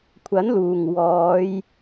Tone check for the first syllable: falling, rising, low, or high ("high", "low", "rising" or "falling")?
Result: rising